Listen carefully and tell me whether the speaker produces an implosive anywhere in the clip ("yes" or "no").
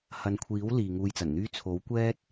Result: no